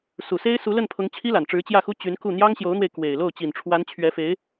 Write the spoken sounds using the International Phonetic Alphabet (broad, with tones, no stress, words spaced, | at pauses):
su˨˩se˥ɪ̯ su˧˥lə˥˩npʰʊ˧˥ŋ t͡ɕʰi˥la˨˩nʈ͡ʂɻ̩˧˥ t͡ɕjä˥˩xu˥ t͡ɕy˧˥nku˥˩ n̪jɑ˥ŋɕjo˧˥ʊ̯n̪we˧ɪ̯ kwe˨˩ɪ̯lo˥˩ʊ̯ t͡ɕi˨˩nʈ͡ʂʰwa˧˥nt͡ɕʰɥɛ˧˥fe˧˥ɪ̯